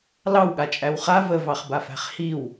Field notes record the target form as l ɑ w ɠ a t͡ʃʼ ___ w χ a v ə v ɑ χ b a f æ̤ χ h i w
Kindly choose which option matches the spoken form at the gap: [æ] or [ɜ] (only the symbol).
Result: æ